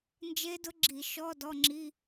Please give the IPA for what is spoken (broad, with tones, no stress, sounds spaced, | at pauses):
n d͡ʒ e˦˥ d ʊ˦˥ ɡ͡ǁ i˧˩˧ ʃ ɔ˧˥˧ d ɔ˧˥˧ ŋ͡ǁ i˧˥˧